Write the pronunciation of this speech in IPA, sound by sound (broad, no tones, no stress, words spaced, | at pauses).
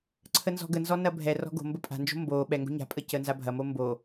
ǀʰənzɔ̤ɡənzɔ nɐbʱɛrɔ̤ ɡo̤ mbəpʼa̤nd͡ʒo̤ mbo ɓɛŋɡo̤ ɲa̤pʼə cənzabʱɐmo mbo